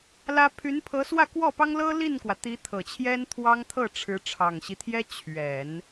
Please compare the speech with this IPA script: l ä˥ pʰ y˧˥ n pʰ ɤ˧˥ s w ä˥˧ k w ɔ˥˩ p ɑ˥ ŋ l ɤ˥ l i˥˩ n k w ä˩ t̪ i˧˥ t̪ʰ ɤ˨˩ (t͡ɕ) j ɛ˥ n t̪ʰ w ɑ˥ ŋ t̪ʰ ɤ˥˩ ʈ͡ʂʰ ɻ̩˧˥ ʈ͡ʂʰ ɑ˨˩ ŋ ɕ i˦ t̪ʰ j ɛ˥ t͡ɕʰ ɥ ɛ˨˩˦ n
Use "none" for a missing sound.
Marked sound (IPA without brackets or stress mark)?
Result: t͡ɕʰ